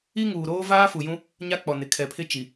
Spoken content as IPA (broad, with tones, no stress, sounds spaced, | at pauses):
i˦ ŋ uː˨ ɾ oː˦ v aː˦ f u˨ j ũ˦ | ɲ a˦ k͡p ɔ˨ n ɪ˨ kʰ ɛ˨ pʰ ɪ˦ t͡ʃ i˨